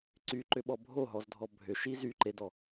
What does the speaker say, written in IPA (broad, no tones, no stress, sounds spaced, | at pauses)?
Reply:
ǀ y ǃ ʏ ɓ ɔ bʱ o ɦ ɔ z dʱ ɔ bʱ ʏ ʃ i z y ǃ e d ɔ